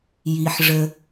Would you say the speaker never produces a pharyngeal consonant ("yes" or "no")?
no